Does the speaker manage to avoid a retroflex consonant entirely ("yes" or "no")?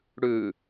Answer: no